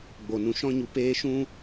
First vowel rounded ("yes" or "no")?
yes